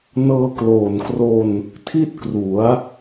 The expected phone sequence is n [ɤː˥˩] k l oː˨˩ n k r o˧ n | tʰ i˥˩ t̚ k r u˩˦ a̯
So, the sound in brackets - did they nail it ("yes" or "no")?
no